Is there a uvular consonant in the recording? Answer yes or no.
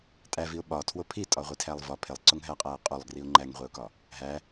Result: yes